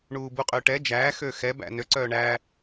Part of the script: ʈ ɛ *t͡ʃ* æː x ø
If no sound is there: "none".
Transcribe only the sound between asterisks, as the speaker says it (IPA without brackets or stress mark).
d͡ʒ